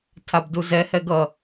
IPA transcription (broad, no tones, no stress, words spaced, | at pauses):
tʰabduzɛ hɛɡʌ